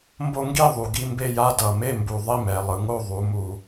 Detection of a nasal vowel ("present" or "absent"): absent